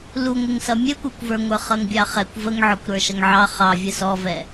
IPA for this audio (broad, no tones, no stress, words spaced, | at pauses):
luŋʷɪŋsʌ mʲɛkʷə˞kʷvə˞ŋʷə˞ χʌŋbʲɑχɛkʷ vəŋʕɔkʷ ɾə˞ʃʌŋʕɑ χɑvʲə sɔvɛ